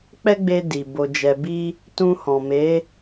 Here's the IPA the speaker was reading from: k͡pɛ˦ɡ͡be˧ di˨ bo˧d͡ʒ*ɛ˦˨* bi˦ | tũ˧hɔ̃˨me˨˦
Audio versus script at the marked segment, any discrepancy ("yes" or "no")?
yes